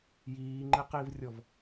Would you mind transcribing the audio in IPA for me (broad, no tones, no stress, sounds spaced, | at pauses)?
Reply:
j iː ŋ͡ǃ ɪ q i v rʲ ɔ v